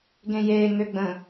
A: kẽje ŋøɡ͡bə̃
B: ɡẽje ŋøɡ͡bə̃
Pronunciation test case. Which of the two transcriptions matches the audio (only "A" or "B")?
B